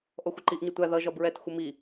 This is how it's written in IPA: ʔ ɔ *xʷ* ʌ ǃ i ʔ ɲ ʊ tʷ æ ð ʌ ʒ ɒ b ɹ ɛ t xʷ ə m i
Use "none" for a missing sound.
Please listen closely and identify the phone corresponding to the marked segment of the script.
xʷ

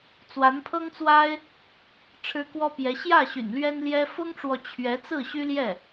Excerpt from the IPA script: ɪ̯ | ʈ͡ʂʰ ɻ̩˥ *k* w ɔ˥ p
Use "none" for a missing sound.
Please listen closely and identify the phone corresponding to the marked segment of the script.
k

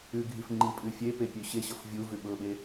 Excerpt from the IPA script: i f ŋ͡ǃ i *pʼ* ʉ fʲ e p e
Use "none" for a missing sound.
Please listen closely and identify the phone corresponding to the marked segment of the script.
pʼ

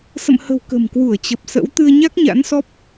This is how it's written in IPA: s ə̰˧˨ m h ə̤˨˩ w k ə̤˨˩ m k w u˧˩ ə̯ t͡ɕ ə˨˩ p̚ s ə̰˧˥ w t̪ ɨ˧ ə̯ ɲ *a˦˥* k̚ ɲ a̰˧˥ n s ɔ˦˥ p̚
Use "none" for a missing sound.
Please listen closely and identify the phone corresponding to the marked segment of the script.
a˦˥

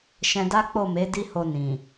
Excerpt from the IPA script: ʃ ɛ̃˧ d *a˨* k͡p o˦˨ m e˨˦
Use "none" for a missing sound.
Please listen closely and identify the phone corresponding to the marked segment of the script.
a˦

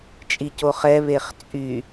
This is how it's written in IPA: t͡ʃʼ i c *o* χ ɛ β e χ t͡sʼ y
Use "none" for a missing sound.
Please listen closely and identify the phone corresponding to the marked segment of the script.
o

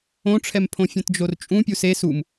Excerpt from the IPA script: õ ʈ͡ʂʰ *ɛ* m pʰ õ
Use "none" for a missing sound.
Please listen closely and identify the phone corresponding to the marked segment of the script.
ɛ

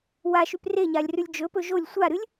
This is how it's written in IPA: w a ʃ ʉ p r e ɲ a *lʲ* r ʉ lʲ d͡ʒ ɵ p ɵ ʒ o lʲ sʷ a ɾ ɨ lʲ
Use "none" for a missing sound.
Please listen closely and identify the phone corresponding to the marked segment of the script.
lʲ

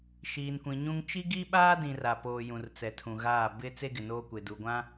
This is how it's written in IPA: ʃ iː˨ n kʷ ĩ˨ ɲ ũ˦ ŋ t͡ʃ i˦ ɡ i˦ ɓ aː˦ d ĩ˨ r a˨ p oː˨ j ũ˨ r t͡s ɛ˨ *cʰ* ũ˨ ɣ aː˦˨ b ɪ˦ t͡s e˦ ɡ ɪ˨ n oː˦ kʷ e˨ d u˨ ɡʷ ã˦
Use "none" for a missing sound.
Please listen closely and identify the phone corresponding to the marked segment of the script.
tʰ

